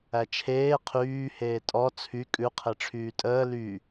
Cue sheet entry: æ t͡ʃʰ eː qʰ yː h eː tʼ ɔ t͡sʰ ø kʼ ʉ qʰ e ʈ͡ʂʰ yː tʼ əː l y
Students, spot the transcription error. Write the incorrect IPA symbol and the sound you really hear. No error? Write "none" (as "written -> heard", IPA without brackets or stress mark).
ø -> y